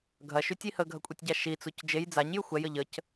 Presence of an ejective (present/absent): present